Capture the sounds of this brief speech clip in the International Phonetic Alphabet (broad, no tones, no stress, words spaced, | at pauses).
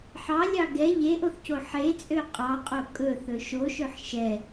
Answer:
ħɑlʲɑ ɡɛ ʎeʔoθco ħet͡sʼø qʼɑqʼo kʼɵθɵ ʃoʃøħ ʃɛ